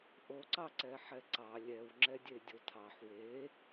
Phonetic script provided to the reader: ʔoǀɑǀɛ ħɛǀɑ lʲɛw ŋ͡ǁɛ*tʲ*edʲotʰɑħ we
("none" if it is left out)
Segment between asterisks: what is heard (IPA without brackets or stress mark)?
dʲ